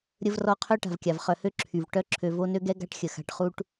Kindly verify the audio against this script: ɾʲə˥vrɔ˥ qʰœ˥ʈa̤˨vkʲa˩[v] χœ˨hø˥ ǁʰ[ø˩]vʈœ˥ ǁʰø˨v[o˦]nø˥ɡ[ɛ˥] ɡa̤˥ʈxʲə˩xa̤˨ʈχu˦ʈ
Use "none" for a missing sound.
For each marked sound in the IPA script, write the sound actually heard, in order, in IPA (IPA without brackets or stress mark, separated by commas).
v, y˩, o˦, ɛ˥